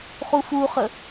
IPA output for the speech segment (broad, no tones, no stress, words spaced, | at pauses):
χufuχə